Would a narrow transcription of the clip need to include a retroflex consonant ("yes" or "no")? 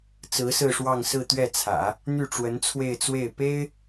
yes